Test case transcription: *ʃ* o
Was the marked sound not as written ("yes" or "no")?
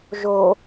yes